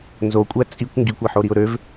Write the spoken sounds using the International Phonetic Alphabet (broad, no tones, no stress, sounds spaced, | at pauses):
n z o kʷʼ æ t͡sʼ i kʷ ŋ ɡ i kʷ e ħ o ɾ i ʊ̯ ɾ ø v